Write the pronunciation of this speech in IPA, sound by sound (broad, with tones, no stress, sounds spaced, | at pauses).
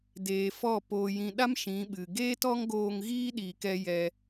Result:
d eː˨ f ɔ˦˨ p oː˨ j ĩ˨ ɗ a˦ m ʃ ĩ˨˦ ɓ ɨ˨ ɡ eː˦ t ɔ˦ ŋ ɡ oː˧ ŋ ɣ iː˦ ɗ iː˨ k ɛ˧ j ɛ˧